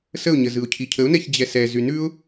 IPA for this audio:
s ə ʊ̯ ɲ ə z ɯ ʊ̯ cʰ i cʰ ə ʊ̯ n ɛ ç d͡ʑ ɛ s ɛ z y n ʉ ʊ̯

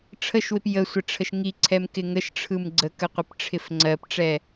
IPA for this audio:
ʈ͡ʂʰ ə ʃ w ɪ p j ə sʷ ɪ ʈ͡ʂʰ ə ʃ ŋ i ǀʰ ɛ m k ɪ ŋ ə ʃ ʈ͡ʂʰ ɯ m ɡ͡ǀ ə k ə qʷ ɪ p ʈ͡ʂʰ ɪ f ŋ͡ǀ ɜ p ʈ͡ʂ ɛ

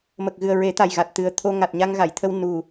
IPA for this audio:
m ə˨˩ k̚ ɣ ɨ˨˩ ə̯ ɹ e˨˩˦ t̪ a˨˩ j ɣ a˨˩ t̚ t̪ ɨ˨˩ ə̯ t̪ʰ o˧ ŋ a˨˩ t̚ ɲ a˧ ŋ ɣ a˨˩˨ j t̪ʰ ə˧ w n u˨˩

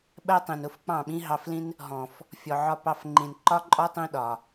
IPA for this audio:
ɓ ɜ˦ tˤ ĩ˨ n ʊ˦ f k͡p ɑ̃˦˨ ɓ ĩ˦ ɦ ɑ˧ f l ĩ˦ n | ɦ ɔ̃˨ f | fʲ ɔ˨ ʕ ɒ˧ p ɑ˧ f ŋ͡ǃ ĩ˨ n ǃ ɒ˦ ǃʼ ɔ˦ tˤ ĩ˧ ɗ ɒ˨

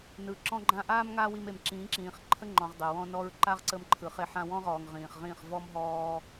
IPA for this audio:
n ɯ˨ ǁ ɔ̃˧ ɡ͡ǃ ã˧ ʔ aː˦ m ŋ a˦ w i˧ m e˨ m ǁ ĩː˨˦ ǁ ĩː˨ χ ǃʰ ə˦ ŋ͡ǃ ɔ̃˨ ʁ dˤ ɪ˨ w ɔ̃˧ n ɔ˧ ɹ ǃ a˦ ʁ ǀ ə˧ m ǃʰ ɯ˨ χ e˧ ħ ã˧ w ɔ̃˦ ʁ ɔː˨ ŋ ʁ ĩː˨ χ ʁ ĩː˦˨ χ v ɔ˦ m ɦ ɔː˦

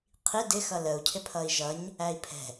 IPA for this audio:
qʰ i d ɪ x ʌ l ə u̯ cʰ ɪ pʰ ʌ i̯ ʒ ʌ ɲ | æ i̯ pʰ ɛ̤

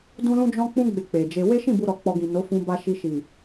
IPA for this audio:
d ũ˦ l ũ˦ d͡ʒ ɔ̃˦ k͡p ũ˦ ɡ͡b e˧ k͡p e˨ d͡ʒ e˧ w e˦ ʃ ĩ˦˨ b u˧ ɾ ɔ˨ k͡p ɔ˧ ɡ ĩ˨ n o˨˦ f ũ˧ b a˧ ʃ i˧ ʃ i˨

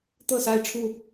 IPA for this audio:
t̪ ɤ˥˨ s a˥˨ ɪ̯ ʈ͡ʂʰ u˥˨

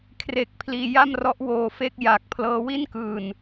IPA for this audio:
kʰ r e˥˩ k̚ pʰ l iː˧ j a˥˩ m r ɔ˦˥ ʔ w oː˧ f e˥˩ k̚ j a˨˩ k̚ pʰ l ɤː˦˥ w i˥˩ n k ɯː˨˩ n

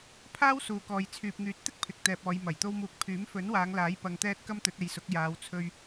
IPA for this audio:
pʰ aː˥ w s uː˨ k ɔː˨ j t͡sʰ yː˨ p̚ ŋ yː˨˥ t̚ t̪ ɪ˥ k̚ pʰ ɪ˨ k̚ t̪ ɛː˨ p̚ ɔː˨˧ j m ɐ˨˩ j t̪ o˧ w m uː˨˥ k̚ pʰ yː˨˥ m f ɵ˨˥ n w aː˨˧ ŋ l aː˨˥ j p ɐ˧ ŋ t̪ ɛː˥ t̚ k ɐ˥ m t̪ ɵ˨˥ t̚ e˨˧ j s ʊ˨˥ k̚ j aː˨˧ w t͡sʰ ɵ˧ ɥ

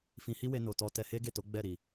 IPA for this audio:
f ĩ˧ h i˦ w e˧ n o˨ t ɔ˧ t ɛ˧ h e˦ ɡ e˦˨ t o˨˦ ɡ͡b ɛ˦˨ ɾ i˨

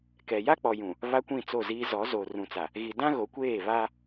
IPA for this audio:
k ɛ˨ j a˦ k͡p ɔ˨ j ũ˨ | β a˦ kʷ ĩ˦˨ t͡s o˦˨ z iː˦ z ɔ˨˦ z o˨ r ũ˨ t͡s a˨ | ɣ i˨ d ã˦ ɣ o˨˦ kʷ eː˦˨ β a˦

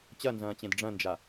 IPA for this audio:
t͡ɕ ɐ n z ɐ̃ː t͡ɕ ẽ d ɖ͡ʐ ɐ̃ n d͡ʒ a

